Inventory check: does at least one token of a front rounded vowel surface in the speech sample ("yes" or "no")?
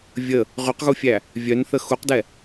yes